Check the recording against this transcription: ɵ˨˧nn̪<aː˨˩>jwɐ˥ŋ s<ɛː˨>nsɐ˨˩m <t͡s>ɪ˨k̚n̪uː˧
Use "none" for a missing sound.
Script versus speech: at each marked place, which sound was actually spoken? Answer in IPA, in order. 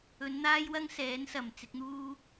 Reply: aː˥, ɛː˨˥, t͡s

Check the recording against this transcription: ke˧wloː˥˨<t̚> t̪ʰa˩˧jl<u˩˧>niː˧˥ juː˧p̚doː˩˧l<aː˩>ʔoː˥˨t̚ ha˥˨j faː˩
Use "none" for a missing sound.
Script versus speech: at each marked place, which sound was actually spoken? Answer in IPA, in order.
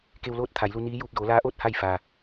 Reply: t̚, u˧, aː˧˥

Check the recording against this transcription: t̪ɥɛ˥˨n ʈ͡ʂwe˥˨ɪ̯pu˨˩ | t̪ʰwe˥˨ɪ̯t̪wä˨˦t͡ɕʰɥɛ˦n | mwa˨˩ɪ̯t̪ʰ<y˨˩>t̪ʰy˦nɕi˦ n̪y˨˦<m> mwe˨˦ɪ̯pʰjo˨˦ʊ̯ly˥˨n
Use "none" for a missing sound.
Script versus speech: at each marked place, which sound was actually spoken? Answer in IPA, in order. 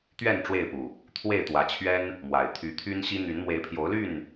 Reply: y˨˦, n

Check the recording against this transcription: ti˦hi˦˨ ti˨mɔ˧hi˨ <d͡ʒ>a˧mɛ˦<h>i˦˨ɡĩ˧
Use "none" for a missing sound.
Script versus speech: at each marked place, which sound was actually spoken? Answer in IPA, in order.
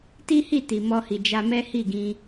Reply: d͡ʒ, h

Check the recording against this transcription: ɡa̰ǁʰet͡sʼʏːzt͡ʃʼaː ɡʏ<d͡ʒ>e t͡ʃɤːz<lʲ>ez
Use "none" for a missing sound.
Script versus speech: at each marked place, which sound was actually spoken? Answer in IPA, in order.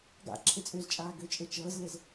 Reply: t͡ʃʼ, l

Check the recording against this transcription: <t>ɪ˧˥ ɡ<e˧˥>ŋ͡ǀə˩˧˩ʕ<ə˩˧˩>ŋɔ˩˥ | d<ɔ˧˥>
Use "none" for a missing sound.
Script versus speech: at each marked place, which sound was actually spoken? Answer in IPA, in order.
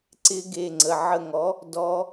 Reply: ǀ, e˩˧˩, ə˦˨, ɔ˧˥

